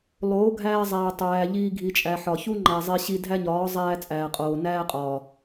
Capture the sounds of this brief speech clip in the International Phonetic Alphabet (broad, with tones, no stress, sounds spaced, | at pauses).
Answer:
lˠ oː˨˦ ɡʱ æː˧ zˤ æː˨ tˤ æː˨ ʎ iː˧ ɡʱ i˨ t͡ʃʼ æ˨ ħ ɒ˨ ç u˦ ŋ͡ǃ æ˨ zˤ e˧ ɕ i˧ dʱ æ˦ ɲ ɒː˨˦ zˤ æː˧ t͡sʼ æː˨ qʼ oː˨ n æː˦ qʼ ɒː˨